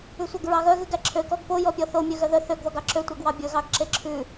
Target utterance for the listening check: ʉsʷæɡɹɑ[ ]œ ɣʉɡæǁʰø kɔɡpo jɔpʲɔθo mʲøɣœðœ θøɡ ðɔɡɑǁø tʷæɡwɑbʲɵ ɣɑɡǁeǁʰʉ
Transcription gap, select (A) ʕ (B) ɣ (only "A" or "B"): B